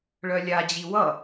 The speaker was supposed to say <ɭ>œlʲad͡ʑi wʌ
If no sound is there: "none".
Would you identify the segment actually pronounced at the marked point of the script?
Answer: ɭ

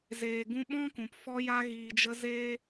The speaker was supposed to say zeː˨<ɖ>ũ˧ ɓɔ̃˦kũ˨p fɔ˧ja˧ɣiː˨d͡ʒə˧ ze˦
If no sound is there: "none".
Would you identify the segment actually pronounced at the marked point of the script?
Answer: ɡ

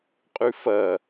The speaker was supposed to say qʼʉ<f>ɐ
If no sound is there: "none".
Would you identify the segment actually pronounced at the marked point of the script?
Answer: f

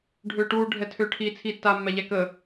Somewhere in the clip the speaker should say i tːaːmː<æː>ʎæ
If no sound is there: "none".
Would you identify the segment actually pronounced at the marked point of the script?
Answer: æ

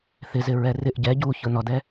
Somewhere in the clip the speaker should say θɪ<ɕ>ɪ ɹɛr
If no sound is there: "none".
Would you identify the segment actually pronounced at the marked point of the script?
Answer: z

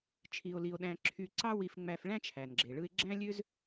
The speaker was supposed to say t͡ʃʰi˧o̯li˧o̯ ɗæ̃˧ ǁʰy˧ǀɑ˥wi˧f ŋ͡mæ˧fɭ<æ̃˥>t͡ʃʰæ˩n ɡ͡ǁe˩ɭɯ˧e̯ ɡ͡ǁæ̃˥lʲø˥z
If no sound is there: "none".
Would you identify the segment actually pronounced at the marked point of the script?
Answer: æ̃˥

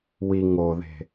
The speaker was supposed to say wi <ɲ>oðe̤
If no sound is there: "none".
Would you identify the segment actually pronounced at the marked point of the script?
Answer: ŋ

